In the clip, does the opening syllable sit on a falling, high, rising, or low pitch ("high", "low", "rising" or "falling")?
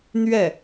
falling